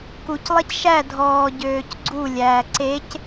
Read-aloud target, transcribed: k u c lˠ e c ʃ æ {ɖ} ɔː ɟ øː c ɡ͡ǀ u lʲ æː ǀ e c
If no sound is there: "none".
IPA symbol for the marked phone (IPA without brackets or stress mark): dʱ